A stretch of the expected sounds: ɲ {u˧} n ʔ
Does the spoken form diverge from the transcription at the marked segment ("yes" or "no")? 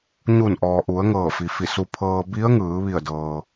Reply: yes